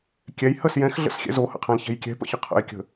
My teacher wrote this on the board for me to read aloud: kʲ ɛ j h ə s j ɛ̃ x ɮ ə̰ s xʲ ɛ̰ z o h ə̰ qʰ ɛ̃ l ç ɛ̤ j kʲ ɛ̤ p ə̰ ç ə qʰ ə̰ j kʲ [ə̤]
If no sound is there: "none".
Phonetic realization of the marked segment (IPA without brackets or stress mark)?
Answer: ə̤